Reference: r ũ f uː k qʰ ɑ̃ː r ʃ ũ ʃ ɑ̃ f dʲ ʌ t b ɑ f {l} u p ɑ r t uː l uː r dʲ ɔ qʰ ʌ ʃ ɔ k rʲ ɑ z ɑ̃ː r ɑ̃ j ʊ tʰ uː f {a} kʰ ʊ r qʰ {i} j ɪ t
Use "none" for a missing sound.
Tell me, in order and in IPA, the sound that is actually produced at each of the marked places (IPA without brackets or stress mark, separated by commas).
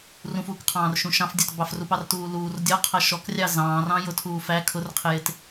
r, æ, ɪ